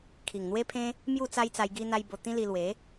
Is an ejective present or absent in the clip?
absent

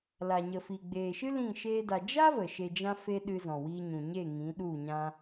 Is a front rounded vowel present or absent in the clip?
absent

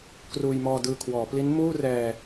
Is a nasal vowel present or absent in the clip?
absent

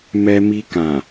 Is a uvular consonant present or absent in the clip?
absent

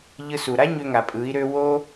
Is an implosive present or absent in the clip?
absent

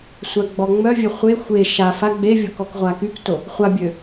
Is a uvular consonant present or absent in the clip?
present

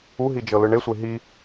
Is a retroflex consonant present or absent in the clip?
present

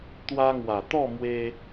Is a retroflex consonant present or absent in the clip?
absent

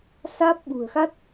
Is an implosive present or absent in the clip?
present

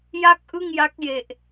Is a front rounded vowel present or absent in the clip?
absent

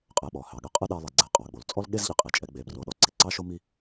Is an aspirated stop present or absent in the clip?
absent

